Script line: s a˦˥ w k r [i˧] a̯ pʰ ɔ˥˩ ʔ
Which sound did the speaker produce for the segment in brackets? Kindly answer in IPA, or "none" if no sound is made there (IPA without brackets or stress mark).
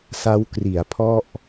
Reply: i˩˦